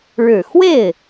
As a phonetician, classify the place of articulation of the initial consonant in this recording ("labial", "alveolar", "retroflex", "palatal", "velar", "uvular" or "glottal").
retroflex